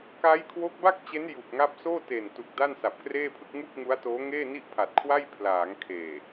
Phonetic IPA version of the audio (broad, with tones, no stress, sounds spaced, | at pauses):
k a˦˥ j kʰ w o˦˥ k̚ b a˥˩ k̚ t͡ɕ e˦˥ n j u˨˩ k̚ ŋ a˦˥ p̚ s oː˥˩ t e˨˩ n t u˨˩ k̚ d a˥˩ n s a˨˩ p̚ k r eː˥˩ pʰ ɯ˥˩ k̚ ŋ u˥˩ k̚ ŋ u˦˥ a̯ t oː˦˥ ŋ eː˥˩ n i˥˩ ʔ pʰ a˨˩ t̚ kʰ w a˥˩ j pʰ l aː˩˦ ŋ kʰ eː˨˩